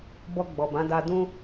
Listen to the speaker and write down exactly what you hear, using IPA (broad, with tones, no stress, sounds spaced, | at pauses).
b ɔ˧ ɡ͡b ɔ˨ b ã˨˦ d a˧ d ũ˦